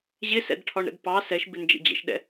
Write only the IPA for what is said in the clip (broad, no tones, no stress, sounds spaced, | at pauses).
ʑ ɪ s ɛ̰ d ʈʰ ɒ ɳ ɾ ə̰ d p ɑ s ɛ ʃ b ɪ n d͡ʒ ə̰ d͡ʑ ə̰ ʃ ɗ ɛ̰